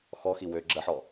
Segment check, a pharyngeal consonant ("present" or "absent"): present